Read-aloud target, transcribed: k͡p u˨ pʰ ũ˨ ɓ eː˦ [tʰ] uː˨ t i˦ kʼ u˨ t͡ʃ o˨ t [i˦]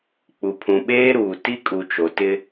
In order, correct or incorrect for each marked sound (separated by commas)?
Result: incorrect, incorrect